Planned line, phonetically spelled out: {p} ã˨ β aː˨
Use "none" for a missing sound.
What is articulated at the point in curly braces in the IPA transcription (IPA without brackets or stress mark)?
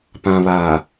p